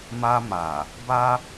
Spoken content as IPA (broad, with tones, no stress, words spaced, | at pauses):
ma˧ma˨ | ba˦